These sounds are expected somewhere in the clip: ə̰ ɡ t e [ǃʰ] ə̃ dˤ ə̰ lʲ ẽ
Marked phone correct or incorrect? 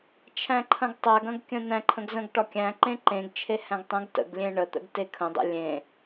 incorrect